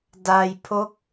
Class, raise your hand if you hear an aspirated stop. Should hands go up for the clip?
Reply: yes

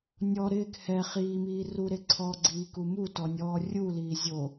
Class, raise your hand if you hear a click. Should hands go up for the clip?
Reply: yes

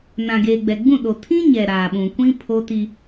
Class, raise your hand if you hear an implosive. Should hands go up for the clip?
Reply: yes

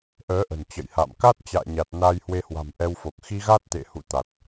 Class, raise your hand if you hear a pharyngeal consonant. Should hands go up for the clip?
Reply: no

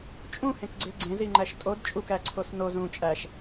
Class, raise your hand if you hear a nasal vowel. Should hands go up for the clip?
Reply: yes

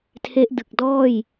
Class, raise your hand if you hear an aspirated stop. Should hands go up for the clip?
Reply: yes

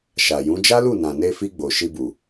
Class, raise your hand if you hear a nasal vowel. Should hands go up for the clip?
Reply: yes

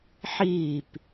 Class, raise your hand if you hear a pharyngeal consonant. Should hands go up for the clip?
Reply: yes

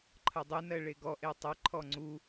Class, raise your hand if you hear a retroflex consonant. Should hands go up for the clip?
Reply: yes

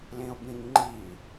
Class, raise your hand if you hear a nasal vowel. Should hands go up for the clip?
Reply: yes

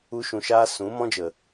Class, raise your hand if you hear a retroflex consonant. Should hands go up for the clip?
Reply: no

